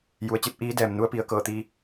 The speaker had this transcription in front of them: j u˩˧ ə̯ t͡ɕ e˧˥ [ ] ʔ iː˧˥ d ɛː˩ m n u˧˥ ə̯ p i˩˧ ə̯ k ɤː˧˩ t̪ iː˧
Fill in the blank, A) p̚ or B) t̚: A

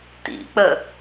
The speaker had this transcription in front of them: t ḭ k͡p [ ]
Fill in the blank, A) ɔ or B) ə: B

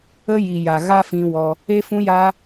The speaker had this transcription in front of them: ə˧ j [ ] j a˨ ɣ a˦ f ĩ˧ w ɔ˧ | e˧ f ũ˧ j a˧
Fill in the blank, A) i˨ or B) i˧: A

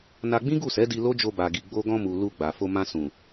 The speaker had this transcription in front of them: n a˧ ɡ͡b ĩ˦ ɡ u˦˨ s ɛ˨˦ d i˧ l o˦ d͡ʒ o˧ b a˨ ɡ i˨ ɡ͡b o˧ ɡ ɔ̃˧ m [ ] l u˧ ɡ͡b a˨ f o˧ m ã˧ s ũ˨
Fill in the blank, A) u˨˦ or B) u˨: B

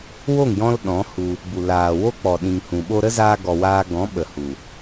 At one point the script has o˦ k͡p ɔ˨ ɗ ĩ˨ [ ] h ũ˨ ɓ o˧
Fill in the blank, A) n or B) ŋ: B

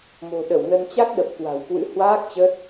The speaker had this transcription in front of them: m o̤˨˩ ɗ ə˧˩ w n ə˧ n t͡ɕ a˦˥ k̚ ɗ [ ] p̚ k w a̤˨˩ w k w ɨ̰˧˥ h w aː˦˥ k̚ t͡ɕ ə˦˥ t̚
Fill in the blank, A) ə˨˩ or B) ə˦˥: A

